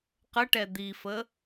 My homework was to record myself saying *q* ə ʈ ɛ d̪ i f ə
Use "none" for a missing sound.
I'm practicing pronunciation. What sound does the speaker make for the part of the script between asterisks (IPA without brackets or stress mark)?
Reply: q